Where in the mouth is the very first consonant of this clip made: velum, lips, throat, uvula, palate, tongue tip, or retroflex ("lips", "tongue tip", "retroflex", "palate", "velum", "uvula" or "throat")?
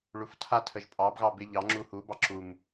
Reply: retroflex